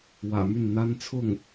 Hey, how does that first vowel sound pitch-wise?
low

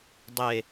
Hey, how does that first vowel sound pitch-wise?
low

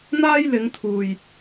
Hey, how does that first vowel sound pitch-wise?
high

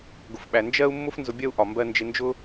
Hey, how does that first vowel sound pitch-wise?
low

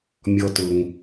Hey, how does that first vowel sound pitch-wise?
high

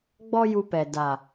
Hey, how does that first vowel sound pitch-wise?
high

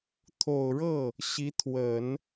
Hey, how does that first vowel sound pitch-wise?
low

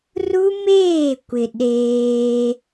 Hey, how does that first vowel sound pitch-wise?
high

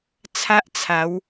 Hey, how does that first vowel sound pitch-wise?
high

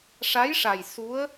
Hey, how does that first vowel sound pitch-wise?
rising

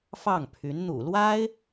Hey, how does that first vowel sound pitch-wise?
falling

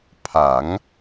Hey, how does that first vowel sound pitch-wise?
rising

